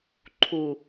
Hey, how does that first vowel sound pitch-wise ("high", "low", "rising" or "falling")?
low